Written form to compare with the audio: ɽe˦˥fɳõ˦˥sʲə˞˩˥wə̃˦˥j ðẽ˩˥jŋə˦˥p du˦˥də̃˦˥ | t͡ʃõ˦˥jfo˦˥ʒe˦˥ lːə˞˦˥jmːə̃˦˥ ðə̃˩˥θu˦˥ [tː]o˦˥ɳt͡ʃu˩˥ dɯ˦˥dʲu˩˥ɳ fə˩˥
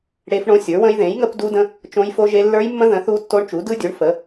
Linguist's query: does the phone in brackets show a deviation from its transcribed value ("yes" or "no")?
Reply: no